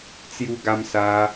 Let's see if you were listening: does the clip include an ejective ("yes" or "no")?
no